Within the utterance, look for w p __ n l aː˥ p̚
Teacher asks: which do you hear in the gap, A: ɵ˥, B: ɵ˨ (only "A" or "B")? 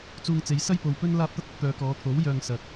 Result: A